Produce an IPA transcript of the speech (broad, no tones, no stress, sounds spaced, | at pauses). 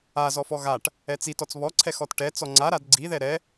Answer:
a z ɔ f ɔ ɣ a ʈ | ɛ t͡s i t ɔ t͡s β ɔ ǀʰ ɛ x ɔ t ʈ ɛ t͡s ɔ ŋ͡ǀ a ɾ a d ɡ͡ǀ i ð ɛ ɾ ɛ